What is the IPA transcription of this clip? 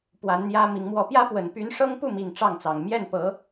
p w a˧˥ n n̪ j ä˥ m i˧˥ ŋ m w ɔ˥ p j ä˥ p w ə˨˩ n p y˧˥ n ʂ ɤ˥ ŋ p u˥˩ m i˨˩ ŋ ʈ͡ʂ ɑ˥˩ ŋ t͡s ɑ˨˩ ŋ m j ɛ˥˩ n p ɤ˧˥

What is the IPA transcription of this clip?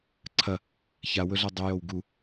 ǀʰ ɐ | ç a w ɵ ɮ a dˤ ɵ j o w ɡ u

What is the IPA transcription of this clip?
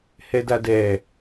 h ɛ d a d ɛ

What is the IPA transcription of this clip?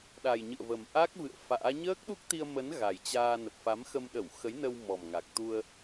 ɗ a˨˩ j ɲ ɨ̰˧˨ ə̯ v ə˨˩ m ʔ a˦˥ k̚ v ɨ̰˧˨ ə̯ f a̰ː˧˥ ɲ əː˦˥ k̚ ɗ u˦˥ k̚ t̪ i˧ ə̯ m ə˨˦ n ɣ a˨˩ j t͡ɕ aː˧ n ə˨˩ p̚ f a˨˦ m x ə˧ m ɗ ə˧˩ w x ə˨˦ j n ə˧ w m ɔ˨˩ m ŋ a˨˩ k̚ t̪ u˧ ə̯

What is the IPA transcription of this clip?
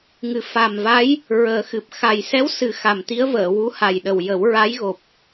ŋ ɨ˨˩ f a˨˩ m v a˧˥ j | ɹ əː˨˩˦ x ɨ˨˩ p̚ x a˨˩ j s ɛ˧˥ w s ɨ˨˩˦ x a˨˩ m t̪ i˧˥ ə̯ v əː˨˩˨ w u˧˥ h a˨˩ j ɗ ə˨˩ w j ə˨˩˦ w ɹ a˧˥ j ɣ o˨˩ p̚

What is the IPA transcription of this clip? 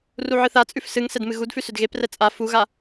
r u ʕ ɨ θ a t͡sʼ ʉ f s ɨ ŋ s ɛ d m ɨ ɣ u d f ʉ s ʏ d ɣ e p r ɛ t͡sʼ a f u ɣ a

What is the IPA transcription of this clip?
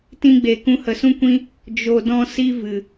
t ĩ˧ ɡ͡b e˨ k ũ˧ h ə˨ s ũ˦ kʷ ĩ˦ | d͡ʒ o˧ d ɔ̃˦ s i˦ v ɨ˨

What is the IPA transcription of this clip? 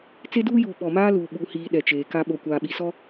t͡s e˦ d uː˦ j uː˨ ɓ ɔ˨ m aː˦ l uː˨ ɓ u˨ h iː˨ ɗ ɛ˨ t͡ʃ eː˨ k a˦ ɓ o˨ kʷ aː˨ ɓ i˨ s ɔ˦

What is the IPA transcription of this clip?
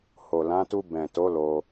h o˨ l ã˨˦ t u˧ b ɛ̃˨ t o˨˦ l o˦

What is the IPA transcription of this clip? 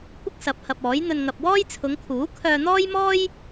kʷ ɪ˥ k̚ s ɐ˨˥ p̚ h ɐ˨ p̚ ɔː˨˥ j n̪ ɵ˧ n ŋ ɐ˨ p̚ w ɔː˥ j t͡sʰ ʊ˨˧ ŋ kʰ uː˨˥ kʰ œː˧ n̪ ɔː˥ j m ɔː˥ j

